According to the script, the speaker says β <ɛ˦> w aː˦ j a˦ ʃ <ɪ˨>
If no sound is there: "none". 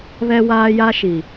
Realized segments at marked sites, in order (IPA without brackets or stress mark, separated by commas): ɛ˦, i˨